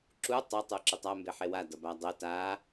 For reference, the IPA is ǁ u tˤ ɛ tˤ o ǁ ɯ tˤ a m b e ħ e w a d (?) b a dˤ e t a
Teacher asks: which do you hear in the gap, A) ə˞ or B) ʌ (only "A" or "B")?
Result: B